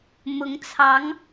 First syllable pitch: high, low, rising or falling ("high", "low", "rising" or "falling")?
rising